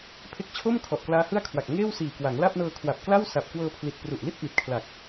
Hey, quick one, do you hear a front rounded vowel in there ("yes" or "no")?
no